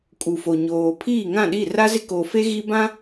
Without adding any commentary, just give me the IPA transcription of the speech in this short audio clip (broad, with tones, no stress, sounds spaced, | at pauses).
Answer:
kʼ u˨ f o˨ ɲ oː˨ pʰ iː˦˨ ŋ ã˦˨ ɗ i˦˨ r a˦ z ɪ˦ k o˨ f e˦ ɣ i˦ b ã˦